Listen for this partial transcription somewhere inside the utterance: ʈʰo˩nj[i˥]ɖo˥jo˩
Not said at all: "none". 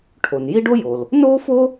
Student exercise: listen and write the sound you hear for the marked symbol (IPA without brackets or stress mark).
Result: i˥